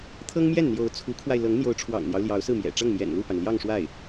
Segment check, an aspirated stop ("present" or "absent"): present